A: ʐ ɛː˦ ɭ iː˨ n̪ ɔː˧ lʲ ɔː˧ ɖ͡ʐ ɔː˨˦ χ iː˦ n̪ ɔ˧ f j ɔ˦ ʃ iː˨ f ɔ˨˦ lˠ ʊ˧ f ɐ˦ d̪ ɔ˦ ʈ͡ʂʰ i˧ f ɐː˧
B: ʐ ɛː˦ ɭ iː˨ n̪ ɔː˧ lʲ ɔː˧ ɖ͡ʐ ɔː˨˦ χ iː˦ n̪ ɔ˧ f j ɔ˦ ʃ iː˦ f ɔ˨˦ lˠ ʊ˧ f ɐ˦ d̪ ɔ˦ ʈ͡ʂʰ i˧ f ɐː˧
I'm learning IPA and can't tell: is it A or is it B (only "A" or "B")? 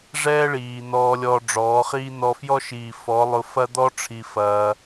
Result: A